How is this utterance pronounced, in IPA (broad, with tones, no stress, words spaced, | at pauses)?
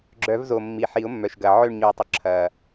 ɡ͡ǁœ˨˩˦vzo˨˩ mːi˨˩ħi˨˩˦ʊ̯mːœ˨˩ʃɡɐ˨˩ ʕø˦˨ɳɲu˨˩˦tˤʏ˨˩ ǁʰɐ˨˩